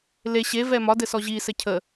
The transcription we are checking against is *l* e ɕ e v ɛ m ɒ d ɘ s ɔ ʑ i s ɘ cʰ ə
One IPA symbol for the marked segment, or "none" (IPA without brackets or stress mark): l